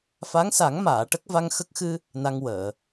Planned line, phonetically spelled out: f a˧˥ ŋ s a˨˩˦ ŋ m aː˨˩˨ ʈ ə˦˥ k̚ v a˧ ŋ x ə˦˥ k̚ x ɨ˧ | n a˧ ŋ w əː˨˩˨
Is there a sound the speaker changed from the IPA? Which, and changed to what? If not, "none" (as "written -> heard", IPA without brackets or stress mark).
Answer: none